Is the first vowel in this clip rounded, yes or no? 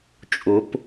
yes